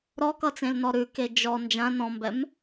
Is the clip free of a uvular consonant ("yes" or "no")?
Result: yes